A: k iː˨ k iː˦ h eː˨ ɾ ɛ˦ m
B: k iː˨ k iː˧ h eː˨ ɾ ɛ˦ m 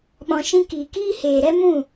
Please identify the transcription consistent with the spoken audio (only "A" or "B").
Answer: A